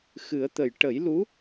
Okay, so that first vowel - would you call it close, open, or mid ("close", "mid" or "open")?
close